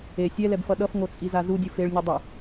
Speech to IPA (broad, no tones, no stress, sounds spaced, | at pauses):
e sʲ ɛ l ɛ b f ʌ ɗ ʌ f ŋ o t͡sʼ i z a z u dʲ u f e ɭ nʲ ɯ dˤ ɯ